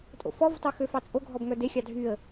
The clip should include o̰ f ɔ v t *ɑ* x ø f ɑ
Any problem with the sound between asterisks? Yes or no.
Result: no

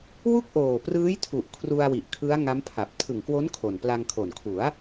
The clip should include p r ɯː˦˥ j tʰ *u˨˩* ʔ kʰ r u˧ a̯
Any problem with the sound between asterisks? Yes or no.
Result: no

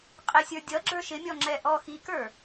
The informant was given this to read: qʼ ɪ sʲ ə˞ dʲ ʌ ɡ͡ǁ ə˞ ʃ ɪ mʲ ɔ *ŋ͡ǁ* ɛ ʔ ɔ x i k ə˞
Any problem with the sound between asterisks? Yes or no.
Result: no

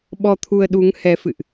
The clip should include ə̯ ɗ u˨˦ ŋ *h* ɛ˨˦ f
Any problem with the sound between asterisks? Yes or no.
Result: no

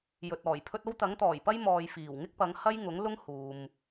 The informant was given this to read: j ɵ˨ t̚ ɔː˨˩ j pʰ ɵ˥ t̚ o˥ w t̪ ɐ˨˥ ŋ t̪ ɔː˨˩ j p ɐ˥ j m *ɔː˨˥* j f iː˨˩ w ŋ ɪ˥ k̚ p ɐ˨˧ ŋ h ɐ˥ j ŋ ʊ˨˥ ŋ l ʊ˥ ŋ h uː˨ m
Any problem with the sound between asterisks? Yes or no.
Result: yes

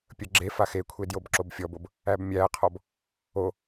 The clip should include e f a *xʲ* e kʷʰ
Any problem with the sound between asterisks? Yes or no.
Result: yes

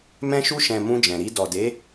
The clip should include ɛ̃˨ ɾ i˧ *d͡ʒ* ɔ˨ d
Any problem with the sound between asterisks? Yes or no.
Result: yes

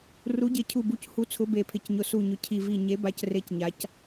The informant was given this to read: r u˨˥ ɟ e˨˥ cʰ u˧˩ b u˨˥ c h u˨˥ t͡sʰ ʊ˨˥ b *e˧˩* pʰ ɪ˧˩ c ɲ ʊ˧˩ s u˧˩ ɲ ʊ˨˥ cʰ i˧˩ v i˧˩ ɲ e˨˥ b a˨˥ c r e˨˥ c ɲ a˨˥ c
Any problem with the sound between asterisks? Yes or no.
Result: no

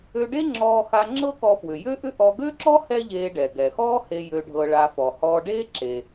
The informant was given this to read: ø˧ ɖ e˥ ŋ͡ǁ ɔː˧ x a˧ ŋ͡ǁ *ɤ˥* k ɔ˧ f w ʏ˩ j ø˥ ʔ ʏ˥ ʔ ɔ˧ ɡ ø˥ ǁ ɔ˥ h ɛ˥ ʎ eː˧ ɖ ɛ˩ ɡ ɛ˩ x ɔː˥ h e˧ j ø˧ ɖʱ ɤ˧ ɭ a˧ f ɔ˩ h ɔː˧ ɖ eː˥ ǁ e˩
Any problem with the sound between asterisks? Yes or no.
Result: no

